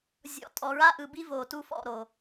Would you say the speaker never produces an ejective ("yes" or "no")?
no